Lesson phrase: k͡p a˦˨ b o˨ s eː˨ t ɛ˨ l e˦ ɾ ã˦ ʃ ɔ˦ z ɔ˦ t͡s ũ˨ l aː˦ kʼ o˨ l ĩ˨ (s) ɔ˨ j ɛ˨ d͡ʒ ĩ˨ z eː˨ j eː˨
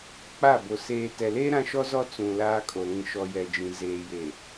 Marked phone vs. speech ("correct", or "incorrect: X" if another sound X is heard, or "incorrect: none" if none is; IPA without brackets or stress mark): incorrect: ʃ